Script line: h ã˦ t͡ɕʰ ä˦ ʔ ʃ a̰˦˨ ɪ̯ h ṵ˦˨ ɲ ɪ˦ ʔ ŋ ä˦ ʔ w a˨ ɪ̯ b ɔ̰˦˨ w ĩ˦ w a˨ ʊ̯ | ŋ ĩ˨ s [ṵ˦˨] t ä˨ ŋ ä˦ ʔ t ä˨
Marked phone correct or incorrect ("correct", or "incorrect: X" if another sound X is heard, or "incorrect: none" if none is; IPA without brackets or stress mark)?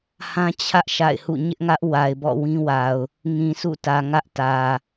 correct